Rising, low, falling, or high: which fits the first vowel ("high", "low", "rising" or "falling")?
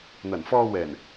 low